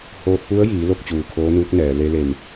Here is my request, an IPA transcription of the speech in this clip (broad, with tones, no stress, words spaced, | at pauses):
hoː˧t̚pu˧˥ə̯jiː˩˧ lo˥˨k̚t͡ɕuː˧˩kʰoː˧˥nuː˧˥k̚ nɛː˩˧le˧˥le˧˩m